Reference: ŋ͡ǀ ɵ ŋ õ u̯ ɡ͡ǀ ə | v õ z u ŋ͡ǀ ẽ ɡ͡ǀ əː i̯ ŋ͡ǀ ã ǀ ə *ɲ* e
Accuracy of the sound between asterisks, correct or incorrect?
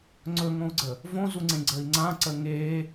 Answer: incorrect: ŋ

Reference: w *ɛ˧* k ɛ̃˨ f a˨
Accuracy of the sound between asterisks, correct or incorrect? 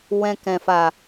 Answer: incorrect: ɛ̃˧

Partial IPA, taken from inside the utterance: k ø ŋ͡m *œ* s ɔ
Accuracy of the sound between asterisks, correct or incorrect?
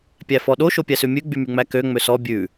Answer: incorrect: ø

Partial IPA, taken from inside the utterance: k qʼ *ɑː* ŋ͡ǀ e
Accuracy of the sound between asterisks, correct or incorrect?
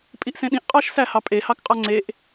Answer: incorrect: ɑ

